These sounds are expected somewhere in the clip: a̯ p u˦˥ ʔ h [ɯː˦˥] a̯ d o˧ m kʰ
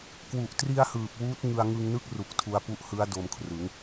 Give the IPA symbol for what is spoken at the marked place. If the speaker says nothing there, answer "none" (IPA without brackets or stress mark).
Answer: ɯ˦˥